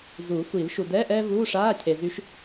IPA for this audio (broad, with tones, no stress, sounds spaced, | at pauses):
z u˨˩˦ sʷ i˨˩˦ l ʃ u˨ d ɛ˧˥˧ ʔ ɛː˥ v uː˧˥˧ ʂ aː˧˥˧ cʰ e˨ z y˧˥ ʃ